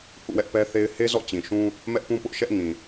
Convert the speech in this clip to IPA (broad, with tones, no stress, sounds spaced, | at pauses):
h ṵ˦˨ w ɛ˦ ʔ p ɛ˦ θ e˦ ɪ̯ h e˦ z ɔ̰˦˨ t͡ɕ ĩ˨ ʃ ũ˦ | m ɛ˦ ʔ p ũ˦ p ʊ˦ ʔ ʃ ɛ˦ ʔ ŋ ĩ˨